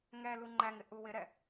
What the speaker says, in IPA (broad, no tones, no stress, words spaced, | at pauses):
ŋɛlu ŋ͡ǃæŋɪ ʔuwɪɾɛ